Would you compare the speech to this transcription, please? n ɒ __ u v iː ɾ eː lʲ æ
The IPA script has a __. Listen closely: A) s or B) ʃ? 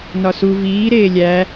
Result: A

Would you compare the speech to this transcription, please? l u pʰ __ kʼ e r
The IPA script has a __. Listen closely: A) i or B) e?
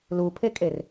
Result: B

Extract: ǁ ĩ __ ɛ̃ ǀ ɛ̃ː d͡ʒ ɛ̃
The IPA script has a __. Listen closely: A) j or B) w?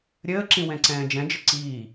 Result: B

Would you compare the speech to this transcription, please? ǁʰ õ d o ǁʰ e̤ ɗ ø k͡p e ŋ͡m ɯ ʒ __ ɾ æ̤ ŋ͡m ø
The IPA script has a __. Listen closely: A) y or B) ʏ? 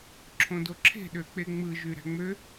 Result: A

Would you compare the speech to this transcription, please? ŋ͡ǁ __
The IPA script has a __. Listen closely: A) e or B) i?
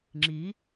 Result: B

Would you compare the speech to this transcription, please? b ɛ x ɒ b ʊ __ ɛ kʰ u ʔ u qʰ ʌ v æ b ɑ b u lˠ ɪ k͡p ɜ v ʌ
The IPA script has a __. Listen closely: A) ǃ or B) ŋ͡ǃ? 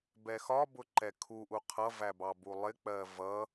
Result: A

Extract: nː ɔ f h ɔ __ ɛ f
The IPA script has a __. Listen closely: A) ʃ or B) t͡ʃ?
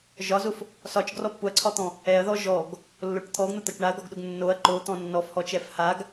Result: B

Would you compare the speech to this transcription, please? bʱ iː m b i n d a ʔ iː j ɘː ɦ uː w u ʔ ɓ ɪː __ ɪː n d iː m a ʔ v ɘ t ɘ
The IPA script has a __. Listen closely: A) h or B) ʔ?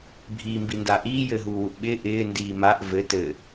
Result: B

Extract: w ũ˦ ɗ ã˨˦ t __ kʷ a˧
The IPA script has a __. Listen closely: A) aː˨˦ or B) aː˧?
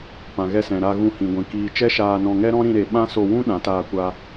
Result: B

